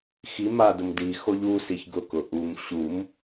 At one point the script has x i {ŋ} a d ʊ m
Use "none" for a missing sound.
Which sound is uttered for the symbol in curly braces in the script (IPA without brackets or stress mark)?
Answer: m